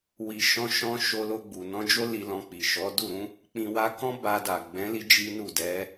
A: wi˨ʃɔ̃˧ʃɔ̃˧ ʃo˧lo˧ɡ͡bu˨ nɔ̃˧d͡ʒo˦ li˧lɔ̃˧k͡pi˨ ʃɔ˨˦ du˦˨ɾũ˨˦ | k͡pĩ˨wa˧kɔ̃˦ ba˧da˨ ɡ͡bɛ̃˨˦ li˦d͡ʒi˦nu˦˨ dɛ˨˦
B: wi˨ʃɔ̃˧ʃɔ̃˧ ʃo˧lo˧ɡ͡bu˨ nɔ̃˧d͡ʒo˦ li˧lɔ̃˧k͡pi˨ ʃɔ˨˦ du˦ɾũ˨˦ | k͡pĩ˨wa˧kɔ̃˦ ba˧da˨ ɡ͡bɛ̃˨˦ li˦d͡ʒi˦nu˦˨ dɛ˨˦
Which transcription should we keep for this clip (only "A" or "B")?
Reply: A